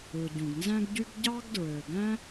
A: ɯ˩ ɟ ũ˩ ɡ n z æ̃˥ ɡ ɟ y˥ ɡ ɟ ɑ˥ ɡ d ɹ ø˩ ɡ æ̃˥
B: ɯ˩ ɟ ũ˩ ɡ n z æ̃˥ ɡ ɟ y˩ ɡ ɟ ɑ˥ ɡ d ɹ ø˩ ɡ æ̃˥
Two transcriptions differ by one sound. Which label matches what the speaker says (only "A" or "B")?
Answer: A